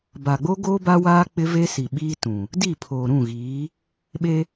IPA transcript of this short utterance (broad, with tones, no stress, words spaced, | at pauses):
ba˨ɡ͡bo˦ ɡoː˦ba˦waː˦ k͡pɪ˦ ve˦si˨ ɓiː˦tũ˨ | di˦˨pʰoː˨ɾũ˦˨ɣiː˨˦ | ɓe˦